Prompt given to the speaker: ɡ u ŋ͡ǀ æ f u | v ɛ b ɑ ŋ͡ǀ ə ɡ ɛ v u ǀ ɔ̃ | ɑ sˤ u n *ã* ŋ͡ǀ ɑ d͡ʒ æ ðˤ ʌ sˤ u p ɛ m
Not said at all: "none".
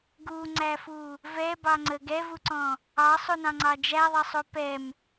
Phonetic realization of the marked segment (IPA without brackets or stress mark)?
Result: ɑ̃